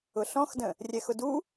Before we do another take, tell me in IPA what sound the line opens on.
ʊ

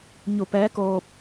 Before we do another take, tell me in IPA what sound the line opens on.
ɲ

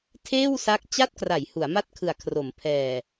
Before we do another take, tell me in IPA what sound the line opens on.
tʰ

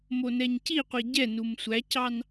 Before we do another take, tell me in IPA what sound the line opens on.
m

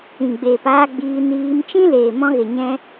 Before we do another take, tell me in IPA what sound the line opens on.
ĩ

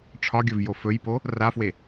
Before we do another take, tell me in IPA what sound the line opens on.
ʈ͡ʂʰ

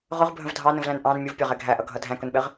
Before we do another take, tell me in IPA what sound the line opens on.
ʁ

